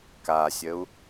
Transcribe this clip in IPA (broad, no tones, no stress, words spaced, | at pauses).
kasʲəu̯